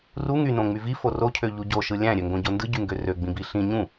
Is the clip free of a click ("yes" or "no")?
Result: yes